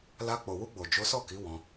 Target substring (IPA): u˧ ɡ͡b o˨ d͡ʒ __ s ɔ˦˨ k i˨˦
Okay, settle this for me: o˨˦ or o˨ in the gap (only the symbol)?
o˨˦